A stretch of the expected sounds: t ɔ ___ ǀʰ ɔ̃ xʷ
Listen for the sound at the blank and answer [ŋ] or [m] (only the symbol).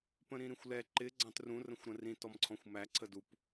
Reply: m